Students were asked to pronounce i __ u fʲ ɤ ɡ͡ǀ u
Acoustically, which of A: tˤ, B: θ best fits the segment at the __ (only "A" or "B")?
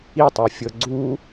A